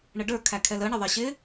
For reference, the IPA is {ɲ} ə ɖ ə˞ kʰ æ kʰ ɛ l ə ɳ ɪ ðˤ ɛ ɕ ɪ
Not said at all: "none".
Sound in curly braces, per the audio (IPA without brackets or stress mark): ɳ